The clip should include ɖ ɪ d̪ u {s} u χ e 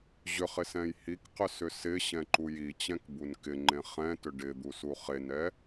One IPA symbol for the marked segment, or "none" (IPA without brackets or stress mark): s